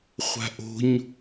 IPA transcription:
χʷ a̤ ʔ o̤ ɲ

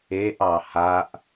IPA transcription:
e ʔ ɑ h a ʔ

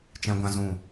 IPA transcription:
t͡ʃ ɛ̃˦ ɡʷ ã˦ z ũ˦˨

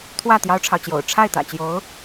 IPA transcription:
t̪ʰ w ä˥˩ t̪ j ɑ˥ ʊ̯ ʈ͡ʂʰ ɑ˨ ʊ̯ t͡ɕ j o̰˨˩ ʊ̯ ʈ͡ʂʰ a˥˩ ɪ̯ t̪ ä̰˨˩ t͡ɕ j o˧˥ ʊ̯

